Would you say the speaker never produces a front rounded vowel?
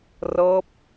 yes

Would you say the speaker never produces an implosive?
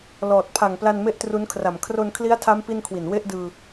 yes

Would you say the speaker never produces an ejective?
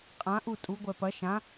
no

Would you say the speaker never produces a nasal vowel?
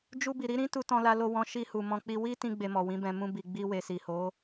no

